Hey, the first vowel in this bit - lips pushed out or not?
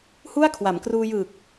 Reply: yes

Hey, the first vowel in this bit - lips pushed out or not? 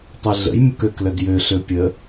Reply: yes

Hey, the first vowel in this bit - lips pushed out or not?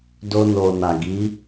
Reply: yes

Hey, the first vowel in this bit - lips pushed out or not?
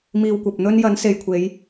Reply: no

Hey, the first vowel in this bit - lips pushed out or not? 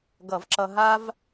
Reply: no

